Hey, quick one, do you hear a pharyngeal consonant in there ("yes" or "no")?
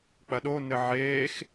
yes